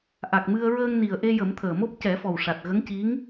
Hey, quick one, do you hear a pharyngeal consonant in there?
no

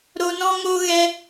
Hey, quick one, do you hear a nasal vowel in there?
yes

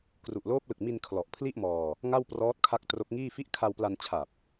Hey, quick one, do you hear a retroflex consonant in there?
no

